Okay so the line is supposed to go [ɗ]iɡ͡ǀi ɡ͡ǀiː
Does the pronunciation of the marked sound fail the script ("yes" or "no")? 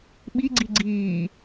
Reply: yes